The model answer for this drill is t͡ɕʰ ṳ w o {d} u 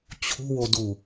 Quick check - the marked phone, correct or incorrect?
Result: correct